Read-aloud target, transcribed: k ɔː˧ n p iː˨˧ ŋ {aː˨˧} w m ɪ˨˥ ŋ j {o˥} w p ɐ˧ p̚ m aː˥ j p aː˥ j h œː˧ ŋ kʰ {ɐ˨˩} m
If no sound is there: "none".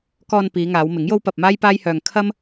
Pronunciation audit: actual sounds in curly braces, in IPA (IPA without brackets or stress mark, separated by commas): aː˨˧, o˥, ɐ˥